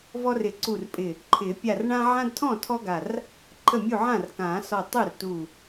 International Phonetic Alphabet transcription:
v ɔ˦ r ɪ˨˩˦ ǀ u˧˩ r pʼ ɪ˧˩ | ǃʰ ɪ˨˩˦ pʲ a˧˩ r ɳ ã˦ ʕ ã˦ d tʰ ɔ̃˥˩ tʰ ɔ˦ ɡ a˧˩ r | ǃʰ ə˥˩ mʲ u˥˩ ʕ ã˥˩ r k ã˨˩˦ s ɔ˧˩ tˤ u˥˩ r t u˧˩

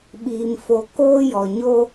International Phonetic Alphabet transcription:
ɓ iː˨ m f o˨ k oː˦ j ɔ˨ ɲ o˦

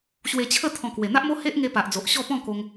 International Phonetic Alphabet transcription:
ɕ w e˧ t͡ɕʰ ə˥˧ t̪ʰ ɔ̃˧ k w e˨˩ n̪ a˦ ʔ m o˦ h e˦ ʔ ŋ e˧ p a˨ ʔ d͡z o˨ ʔ ɕ ɔ˥˧ p ɔ̃˥˧ k o˧ ŋ

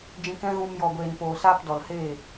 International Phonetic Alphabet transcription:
d͡ʒ ĩ˧ k ɛ̃˦ ɣ ũ˧ m j ɔ˨ ɡʷ eː˨ n p oː˨ s aː˦ p d ɔ˨ l h eː˦˨

